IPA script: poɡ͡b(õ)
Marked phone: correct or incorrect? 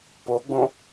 correct